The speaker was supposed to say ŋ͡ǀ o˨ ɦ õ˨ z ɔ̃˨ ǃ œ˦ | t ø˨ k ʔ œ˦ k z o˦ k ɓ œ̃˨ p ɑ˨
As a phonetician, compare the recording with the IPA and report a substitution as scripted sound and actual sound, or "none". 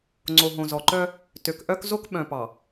ɔ̃˨ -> ɔ˨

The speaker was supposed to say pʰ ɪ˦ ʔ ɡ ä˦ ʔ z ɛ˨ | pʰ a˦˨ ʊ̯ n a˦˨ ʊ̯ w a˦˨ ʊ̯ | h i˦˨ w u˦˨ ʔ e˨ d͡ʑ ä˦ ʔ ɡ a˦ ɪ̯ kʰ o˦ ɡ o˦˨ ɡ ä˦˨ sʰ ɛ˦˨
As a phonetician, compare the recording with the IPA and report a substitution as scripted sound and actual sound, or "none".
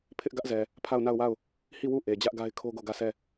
none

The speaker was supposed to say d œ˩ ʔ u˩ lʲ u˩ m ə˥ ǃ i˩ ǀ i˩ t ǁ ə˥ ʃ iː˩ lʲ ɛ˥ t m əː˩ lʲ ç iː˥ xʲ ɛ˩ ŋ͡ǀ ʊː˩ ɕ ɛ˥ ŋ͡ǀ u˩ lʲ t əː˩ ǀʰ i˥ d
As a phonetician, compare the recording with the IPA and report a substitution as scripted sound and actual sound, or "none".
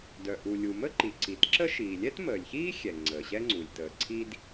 ʊː˩ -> əː˩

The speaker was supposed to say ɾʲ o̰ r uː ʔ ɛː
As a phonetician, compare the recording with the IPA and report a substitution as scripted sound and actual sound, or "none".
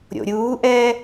r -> ɾʲ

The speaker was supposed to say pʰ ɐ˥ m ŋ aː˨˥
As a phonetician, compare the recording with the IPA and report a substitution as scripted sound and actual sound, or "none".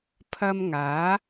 none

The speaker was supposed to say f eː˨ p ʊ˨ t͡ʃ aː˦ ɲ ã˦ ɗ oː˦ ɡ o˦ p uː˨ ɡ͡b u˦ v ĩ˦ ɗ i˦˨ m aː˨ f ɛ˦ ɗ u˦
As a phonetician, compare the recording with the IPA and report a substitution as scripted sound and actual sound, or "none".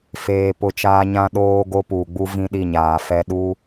m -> ɲ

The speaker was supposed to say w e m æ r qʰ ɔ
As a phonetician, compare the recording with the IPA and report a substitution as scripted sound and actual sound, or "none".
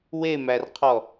none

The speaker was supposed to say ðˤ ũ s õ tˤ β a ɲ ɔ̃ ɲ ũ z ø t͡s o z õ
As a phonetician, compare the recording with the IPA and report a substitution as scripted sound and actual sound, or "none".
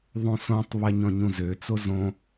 none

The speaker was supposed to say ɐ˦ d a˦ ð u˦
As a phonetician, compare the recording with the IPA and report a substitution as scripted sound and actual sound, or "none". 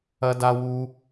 ð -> w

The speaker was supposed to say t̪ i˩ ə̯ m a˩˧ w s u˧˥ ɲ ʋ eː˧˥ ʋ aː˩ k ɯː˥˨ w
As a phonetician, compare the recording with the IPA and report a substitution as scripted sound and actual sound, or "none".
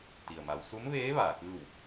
ɲ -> m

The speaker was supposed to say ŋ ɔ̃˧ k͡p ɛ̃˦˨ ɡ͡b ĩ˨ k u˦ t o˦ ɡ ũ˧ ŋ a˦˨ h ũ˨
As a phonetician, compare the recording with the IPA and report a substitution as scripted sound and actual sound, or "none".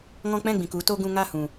none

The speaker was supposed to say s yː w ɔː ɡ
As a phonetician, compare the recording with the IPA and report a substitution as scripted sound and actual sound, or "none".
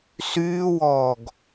none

